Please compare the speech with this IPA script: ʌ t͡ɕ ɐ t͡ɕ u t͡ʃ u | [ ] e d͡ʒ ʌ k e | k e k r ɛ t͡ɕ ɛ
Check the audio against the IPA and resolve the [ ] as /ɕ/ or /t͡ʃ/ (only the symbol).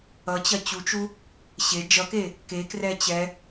ɕ